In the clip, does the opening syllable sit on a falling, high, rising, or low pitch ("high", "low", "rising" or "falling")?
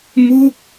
falling